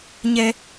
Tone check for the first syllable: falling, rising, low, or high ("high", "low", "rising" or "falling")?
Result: high